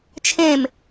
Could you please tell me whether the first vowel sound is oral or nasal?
nasal